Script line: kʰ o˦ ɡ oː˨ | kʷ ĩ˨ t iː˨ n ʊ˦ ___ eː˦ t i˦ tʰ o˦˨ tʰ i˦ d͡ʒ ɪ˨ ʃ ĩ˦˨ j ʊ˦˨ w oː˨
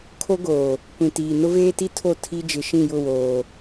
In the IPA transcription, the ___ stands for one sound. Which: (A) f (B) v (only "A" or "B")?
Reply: B